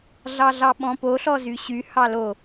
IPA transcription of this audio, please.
ɮ ɑ ɮ ɑ ɓ ɔ̃ p o ɬ ɔ z y ɕ y h ɑ l o

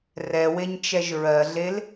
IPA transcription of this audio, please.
r ɛ w e ɲ t͡ʃ ɛ ʒ ɹ ɜ ɮ e l

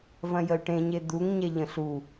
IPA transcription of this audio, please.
v ɐ̃ j ə y̯ ʈ ẽ ɲ e d̪ u ŋ ɲ ɛ ʎ ə̃ ɬ u

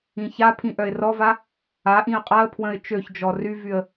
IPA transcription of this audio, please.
ĩ ç a pʰ ĩ ʔ œ ɪ̯ r ɔ v a | a ʔ ĩ ə̯ qʼ a ə̯ pʰ w ə̃ ɪ̯ t͡ʃ ø ç d͡ʒ ɔ r y v y ə̯

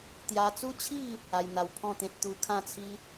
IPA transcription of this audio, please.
t̪ j a˧ t͡s u˦ t͡ɕʰ i˥˧ | a˧ j n̪ a˧ w pʰ ɔ̃˥˧ t̪ ẽ˦ t̚ t̪ u˧ kʰ ã˥˧ t͡sʰ i˦

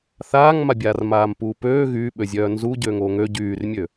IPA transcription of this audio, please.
θ aː ŋ m a bʲ aː r m aː m p uː p øː ɣ yː ɓ ø zʲ œː n z u ɟ øː ŋ oː ŋ ø ɟ yː r mʲ ø

